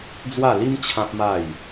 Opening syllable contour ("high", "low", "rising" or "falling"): falling